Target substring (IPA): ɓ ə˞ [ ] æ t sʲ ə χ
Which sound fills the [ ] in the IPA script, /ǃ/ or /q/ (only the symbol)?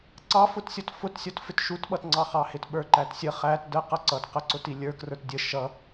ǃ